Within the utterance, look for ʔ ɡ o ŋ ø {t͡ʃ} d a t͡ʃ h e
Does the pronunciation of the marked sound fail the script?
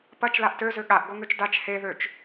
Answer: no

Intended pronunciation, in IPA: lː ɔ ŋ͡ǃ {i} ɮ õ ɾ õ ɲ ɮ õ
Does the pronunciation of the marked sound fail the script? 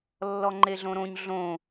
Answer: yes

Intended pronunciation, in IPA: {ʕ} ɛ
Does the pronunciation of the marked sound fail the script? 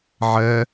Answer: no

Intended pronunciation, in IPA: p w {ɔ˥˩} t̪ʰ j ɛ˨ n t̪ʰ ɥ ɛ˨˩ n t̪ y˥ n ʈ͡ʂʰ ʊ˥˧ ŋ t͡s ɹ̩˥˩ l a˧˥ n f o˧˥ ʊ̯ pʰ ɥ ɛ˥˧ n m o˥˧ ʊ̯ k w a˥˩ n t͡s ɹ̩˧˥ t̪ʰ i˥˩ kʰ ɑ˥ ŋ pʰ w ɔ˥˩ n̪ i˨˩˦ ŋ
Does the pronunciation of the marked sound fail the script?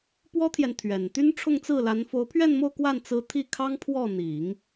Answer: yes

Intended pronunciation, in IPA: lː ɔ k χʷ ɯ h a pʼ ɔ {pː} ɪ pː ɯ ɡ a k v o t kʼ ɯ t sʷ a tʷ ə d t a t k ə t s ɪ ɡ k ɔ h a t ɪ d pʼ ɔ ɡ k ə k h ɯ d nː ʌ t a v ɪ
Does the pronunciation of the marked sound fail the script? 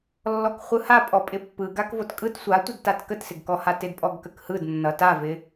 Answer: yes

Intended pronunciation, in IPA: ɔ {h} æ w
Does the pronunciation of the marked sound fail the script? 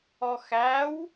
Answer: yes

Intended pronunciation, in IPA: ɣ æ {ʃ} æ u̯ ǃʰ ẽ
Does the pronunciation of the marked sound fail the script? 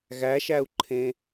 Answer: no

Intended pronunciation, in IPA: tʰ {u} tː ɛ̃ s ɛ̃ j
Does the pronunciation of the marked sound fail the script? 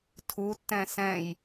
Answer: no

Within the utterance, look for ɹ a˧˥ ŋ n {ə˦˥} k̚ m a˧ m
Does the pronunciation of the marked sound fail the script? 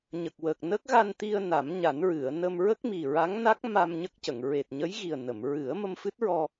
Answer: yes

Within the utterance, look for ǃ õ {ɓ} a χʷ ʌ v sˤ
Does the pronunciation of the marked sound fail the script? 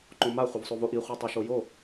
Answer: yes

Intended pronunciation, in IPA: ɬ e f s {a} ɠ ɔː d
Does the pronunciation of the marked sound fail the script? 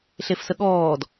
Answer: yes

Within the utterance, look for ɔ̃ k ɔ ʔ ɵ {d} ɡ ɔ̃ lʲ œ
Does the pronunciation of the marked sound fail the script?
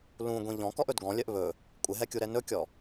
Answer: no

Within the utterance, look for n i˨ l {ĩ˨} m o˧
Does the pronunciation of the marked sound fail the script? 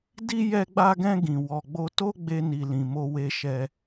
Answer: no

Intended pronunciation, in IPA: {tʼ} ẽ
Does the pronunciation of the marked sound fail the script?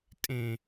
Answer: no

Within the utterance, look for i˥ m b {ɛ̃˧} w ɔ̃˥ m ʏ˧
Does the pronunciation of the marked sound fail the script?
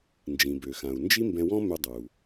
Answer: no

